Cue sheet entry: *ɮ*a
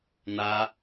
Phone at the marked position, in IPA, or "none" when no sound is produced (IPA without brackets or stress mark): n̪